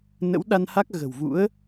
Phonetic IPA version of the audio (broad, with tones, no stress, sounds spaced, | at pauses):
n ə̰˧˥ w ɗ a˧ n h a˦˥ k̚ ɣ ə̤˨˩ w v ṵ˧˥ ə̯